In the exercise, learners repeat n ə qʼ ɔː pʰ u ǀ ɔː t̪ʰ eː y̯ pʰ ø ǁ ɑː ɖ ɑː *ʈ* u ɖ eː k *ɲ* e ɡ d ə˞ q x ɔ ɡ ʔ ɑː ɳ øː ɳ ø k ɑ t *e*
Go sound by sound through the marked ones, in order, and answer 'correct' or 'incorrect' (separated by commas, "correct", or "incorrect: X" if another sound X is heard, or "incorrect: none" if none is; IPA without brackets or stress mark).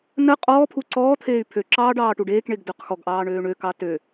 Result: correct, incorrect: ɳ, incorrect: ø